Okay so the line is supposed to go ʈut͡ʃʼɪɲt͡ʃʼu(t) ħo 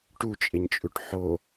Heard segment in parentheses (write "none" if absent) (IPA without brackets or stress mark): ʈ